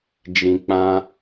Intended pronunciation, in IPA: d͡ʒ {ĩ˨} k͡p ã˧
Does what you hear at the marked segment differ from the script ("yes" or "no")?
no